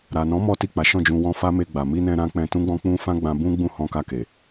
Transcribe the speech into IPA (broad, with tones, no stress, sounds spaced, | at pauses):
ɾ a˨ n ɔ̃˨˦ m ɔ˦ t i˦˨ k͡p a˨˦ ʃ ɔ̃˦˨ d͡ʒ ũ˧ w ɔ̃˧ f a˦ m e˧ ɡ͡b a˨ m i˧ n ɛ̃˧ ɾ ã˦ k͡p ɛ̃˧ t ũ˦ ɡ͡b ɔ̃˦ k͡p ũ˦ f ã˦ ɡ͡b ã˧ b ũ˦ ɡ͡b ũ˦˨ h ɔ̃˧ k a˧ k e˨